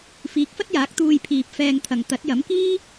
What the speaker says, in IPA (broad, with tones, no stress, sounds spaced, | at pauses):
f iː˨˥ k̚ f ɐ˥ t̚ j aː˨˥ k̚ t̪ uː˧ j pʰ iː˨ p̚ f ɛː˧ ŋ t̪ʰ ɐ˨ ŋ t̪ ɐ˨˥ t̚ j ɐ˨˥ m k iː˥